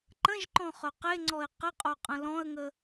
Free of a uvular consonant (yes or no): no